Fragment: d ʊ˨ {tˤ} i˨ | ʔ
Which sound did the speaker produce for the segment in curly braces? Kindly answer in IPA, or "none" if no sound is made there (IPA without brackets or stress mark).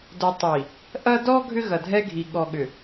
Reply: tˤ